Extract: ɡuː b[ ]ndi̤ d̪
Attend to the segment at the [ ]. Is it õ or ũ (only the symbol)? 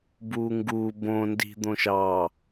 õ